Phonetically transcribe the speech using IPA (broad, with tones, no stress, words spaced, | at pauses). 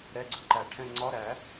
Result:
ɾɛ˧˥˧ɡ͡ǀʊ˥˧ǃæ˨˩˦ʈʰɛ̃˥˧ ŋ͡ǀɒ˧˥˧ ɾæ˨˩˦